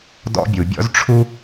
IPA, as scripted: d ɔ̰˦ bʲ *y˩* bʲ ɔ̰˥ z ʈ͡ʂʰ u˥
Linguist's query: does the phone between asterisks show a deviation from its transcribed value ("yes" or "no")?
yes